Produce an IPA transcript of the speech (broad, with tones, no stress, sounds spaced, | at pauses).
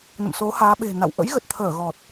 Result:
n ə̰˧˨ m s o˨˦ h aː˨˦ ɓ e̤˨˩ n a̰˧˨ w ʔ ə̰˧˥ j ɣ ə˨˩ t̚ t̪ʰ əː˧˩ ɣ ɔ˨˩ t̚